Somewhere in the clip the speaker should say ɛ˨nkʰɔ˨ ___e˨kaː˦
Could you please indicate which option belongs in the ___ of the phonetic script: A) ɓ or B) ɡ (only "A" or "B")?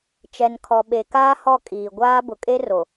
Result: A